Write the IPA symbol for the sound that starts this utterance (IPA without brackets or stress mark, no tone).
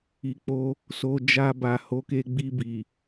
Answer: i